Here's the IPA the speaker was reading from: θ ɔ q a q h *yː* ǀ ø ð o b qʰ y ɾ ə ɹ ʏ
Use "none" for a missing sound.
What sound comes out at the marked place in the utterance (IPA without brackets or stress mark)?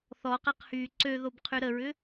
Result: yː